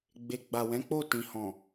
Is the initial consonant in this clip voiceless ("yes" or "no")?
no